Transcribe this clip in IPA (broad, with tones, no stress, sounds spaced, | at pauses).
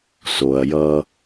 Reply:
s o˨ ɐ̯ j ʌ˦